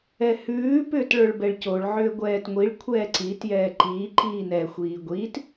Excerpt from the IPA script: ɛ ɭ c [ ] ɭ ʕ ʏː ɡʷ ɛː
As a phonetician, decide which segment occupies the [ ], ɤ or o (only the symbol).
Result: o